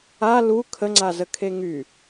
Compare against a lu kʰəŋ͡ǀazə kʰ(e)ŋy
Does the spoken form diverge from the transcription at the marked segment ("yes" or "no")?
no